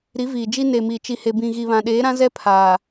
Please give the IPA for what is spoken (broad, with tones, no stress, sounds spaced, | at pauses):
ɾ i˨˦ v iː˨ d͡ʒ i˦ n e˨ m i˨ t͡ʃ i˨ h e˨ b ĩ˨ ɣ i˨ β ã˨ ɗ eː˨˦ ɾ ã˦ z ɛ˦ pʰ aː˨